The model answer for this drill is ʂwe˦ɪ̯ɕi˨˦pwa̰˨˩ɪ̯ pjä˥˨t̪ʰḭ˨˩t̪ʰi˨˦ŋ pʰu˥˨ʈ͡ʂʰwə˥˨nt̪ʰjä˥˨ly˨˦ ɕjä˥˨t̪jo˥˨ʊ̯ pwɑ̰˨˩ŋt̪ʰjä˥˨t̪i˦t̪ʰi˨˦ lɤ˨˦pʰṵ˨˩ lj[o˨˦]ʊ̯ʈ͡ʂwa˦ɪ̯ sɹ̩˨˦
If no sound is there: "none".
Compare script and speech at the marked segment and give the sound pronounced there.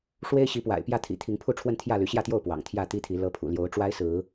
o˨˦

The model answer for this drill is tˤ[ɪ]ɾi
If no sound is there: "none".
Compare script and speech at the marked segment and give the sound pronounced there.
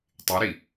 ɪ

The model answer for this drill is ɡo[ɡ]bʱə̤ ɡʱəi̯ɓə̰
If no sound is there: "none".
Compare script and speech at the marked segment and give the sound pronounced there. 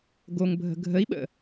ŋ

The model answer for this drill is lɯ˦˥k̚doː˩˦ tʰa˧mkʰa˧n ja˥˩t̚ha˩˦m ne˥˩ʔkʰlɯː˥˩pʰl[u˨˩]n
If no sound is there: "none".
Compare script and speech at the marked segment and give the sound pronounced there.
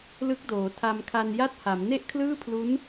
u˦˥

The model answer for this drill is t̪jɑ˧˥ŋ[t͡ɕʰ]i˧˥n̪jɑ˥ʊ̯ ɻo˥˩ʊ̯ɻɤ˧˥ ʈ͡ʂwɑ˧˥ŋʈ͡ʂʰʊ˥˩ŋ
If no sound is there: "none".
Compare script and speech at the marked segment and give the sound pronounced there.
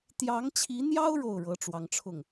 t͡ɕʰ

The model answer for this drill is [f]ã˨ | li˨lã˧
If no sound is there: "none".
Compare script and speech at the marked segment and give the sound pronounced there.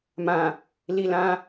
m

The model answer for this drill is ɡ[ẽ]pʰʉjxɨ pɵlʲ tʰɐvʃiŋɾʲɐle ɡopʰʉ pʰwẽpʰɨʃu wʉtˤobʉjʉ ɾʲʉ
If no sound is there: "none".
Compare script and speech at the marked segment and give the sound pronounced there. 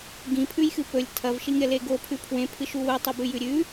ĩ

